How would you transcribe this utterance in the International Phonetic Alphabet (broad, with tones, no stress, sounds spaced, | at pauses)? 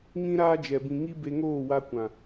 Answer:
ŋ ĩ˦ ɾ aː˦ d͡ʒ ɛ˨ b ĩ˨ ŋ i˦ b e˧ ŋ oː˦˨ w a˧ kʷ ã˨